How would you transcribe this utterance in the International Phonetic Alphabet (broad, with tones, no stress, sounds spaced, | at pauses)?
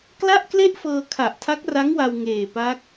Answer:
k l a˥˩ ʔ k l e˥˩ ʔ f ɤː˧ kʰ a˨˩ ʔ tʰ a˦˥ k̚ r a˦˥ ŋ w a˧ w ŋ eː˨˩ p a˦˥ k̚